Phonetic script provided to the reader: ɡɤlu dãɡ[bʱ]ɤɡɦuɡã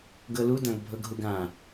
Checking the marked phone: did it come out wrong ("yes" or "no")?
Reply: no